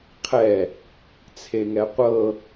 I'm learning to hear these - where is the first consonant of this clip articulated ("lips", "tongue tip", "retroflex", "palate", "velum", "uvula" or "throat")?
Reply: uvula